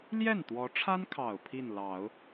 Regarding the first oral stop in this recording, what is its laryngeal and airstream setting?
plain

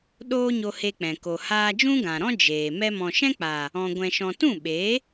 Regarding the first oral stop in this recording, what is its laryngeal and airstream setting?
implosive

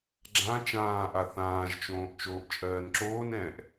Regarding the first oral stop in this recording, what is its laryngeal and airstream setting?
click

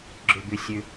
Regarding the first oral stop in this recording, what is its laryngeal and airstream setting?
click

